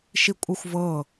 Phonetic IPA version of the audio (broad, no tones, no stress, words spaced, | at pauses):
ʃikʷʼɯxʷvɤ